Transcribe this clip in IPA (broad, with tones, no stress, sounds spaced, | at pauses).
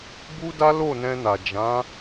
b u˦ d a˦ l o˦˨ n ɛ̃˧ n a˨ d͡ʒ ã˨˦